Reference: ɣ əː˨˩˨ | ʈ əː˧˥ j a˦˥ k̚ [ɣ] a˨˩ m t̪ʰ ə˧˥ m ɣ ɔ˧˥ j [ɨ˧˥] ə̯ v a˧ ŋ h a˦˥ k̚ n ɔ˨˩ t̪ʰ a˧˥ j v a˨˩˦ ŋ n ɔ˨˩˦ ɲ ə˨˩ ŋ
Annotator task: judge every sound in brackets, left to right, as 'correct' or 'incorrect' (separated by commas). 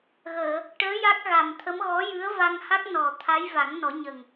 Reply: correct, correct